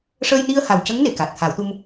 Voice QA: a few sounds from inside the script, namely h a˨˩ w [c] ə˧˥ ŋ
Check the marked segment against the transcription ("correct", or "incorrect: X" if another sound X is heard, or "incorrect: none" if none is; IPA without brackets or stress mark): correct